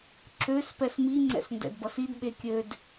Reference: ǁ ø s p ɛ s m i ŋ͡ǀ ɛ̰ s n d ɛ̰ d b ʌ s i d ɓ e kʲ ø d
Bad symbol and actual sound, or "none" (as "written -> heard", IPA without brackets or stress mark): none